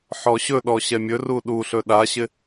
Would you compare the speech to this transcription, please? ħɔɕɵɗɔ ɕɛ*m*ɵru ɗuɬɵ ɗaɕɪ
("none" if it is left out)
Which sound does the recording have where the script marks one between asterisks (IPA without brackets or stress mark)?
mʲ